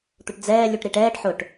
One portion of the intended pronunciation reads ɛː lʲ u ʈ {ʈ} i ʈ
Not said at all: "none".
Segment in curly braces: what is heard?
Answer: ɾ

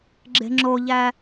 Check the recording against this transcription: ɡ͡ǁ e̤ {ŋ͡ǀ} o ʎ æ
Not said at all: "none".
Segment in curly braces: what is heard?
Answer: ŋ͡ǁ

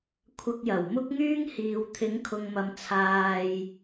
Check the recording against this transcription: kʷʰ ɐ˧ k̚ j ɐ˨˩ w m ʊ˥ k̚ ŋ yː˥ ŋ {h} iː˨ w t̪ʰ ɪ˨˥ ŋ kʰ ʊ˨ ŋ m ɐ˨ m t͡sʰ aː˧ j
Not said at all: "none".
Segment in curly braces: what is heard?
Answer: h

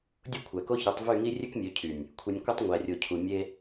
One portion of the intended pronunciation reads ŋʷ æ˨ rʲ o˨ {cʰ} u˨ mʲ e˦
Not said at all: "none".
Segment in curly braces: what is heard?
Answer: cʰ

